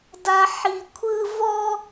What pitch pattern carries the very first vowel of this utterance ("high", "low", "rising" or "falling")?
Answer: high